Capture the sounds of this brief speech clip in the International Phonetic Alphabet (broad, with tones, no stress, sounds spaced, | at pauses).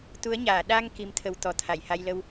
t̪ u˨˦ ə̯ ɲ aː˧˩ ɗ a˧ ŋ k i˨˦ m t̪ʰ ə˨˦ w t̪ ɔ˨˩ t̪ʰ a˧˩ j h a˧ j l ə˧ w